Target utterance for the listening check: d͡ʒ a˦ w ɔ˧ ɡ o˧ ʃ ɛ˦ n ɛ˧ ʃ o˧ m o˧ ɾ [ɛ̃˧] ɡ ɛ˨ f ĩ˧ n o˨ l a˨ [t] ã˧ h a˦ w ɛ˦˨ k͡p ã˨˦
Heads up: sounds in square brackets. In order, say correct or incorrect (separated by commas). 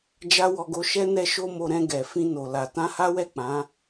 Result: correct, correct